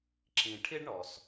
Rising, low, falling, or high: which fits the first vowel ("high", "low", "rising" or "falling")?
low